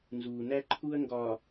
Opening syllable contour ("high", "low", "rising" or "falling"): low